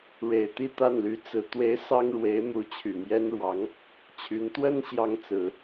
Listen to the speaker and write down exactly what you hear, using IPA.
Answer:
ɻ e˨˩ ɪ̯ t̪ i˥˧ t̪ a˥˩ n l y˧˥ t͡s ɹ̩˧˥ t̪ w e˧˥ ɪ̯ s ɑ˥ ŋ ɻ w e˧˥ ɪ̯ m u˧˥ t͡ɕʰ y˨˩ m j ɛ˥ n ɻ w ɑ˧˥ ŋ | t͡ɕʰ y˧˥ n t̪ w ə˥ n ɕ j ɑ˥ ŋ t͡s ɹ̩˨˩˦

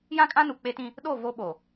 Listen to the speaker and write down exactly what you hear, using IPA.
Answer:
j ã˦ kʼ ã˦ n u˨ k͡p e˦ t ĩ˦ | ɗ o˦˨ v o˦ ɓ o˨

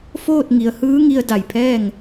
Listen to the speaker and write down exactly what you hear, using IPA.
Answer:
f oː˥˨ t̚ ŋ i˩˧ ə̯ h ɯː˧˥ ŋ i˧ ə̯ d a˧˩ j pʰ ɛː˥˨ ŋ

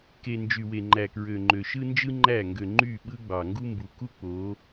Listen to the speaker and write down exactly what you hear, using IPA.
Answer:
k e˨ n d͡ʒ y˨ w e˨ ŋ͡ǃ æ˨ k ɹ ø˨ ŋ͡ǃ ø˨ ʃ ɯ˦ n d͡ʒ ɯ˦ ŋ͡ǃ æ˦˨ ŋ ɡ ø˨ ŋ͡ǃ y˦˨ ɓ ɯ˦ ɡ͡b ɑ˨ ŋ ɡ u˦ m b u˨˦ k u˦ k͡p o˨˦

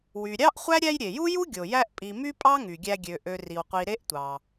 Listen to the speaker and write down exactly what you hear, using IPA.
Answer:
w y˨ ɾʲ ɑ˥ ʔ χʷ æ˥ ɾʲ æ˦ j ɾʲ e˩ j u˥ j u˥ ɡʲ o˩ j æ˦ ʔ pʼ i˨ m y˥ pʼ ɑ˥ ŋ y˩ ɡʲ æ˦ ɡʲ ø˨ ʔ ø˨ r i˩ w qʷ i˨ ɾ e˥ ʔ tʷ ɑ˩

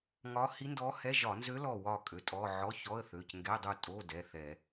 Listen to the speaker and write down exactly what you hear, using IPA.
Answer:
ŋ ɒ˧˥ h i˧˥ n d ɔ˧˥ h ɛ˧˥˧ ʒ ɒ˧˩˧ n z ø˧˥ l ɔ˥˨ w ɒ˥˨ kʼ ø˩˧˩ tʼ ɔ˧˥˧ ʕ ɔ˧˥˧ ç ɔ˧˥˧ ə̯ θ ø˩˧˩ c ŋ ɡ ɛ˧˥˧ dˤ u˥˨ tʼ o˧˥˧ d ɛ˩˧˩ θ ɛ˧˩˧

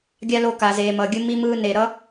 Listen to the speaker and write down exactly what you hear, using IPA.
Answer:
ɡʲ a˦ l o˧ k a˨ z eː˨ m ʌ˨ ɡʲ ɯ˧ m i˧ m ɯː˧ n e˨ ɾ ʌ˦

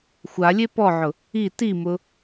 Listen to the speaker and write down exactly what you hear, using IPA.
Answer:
xʷ a lʲ e p ɔ ʕ ʊ | i t i m ʊ

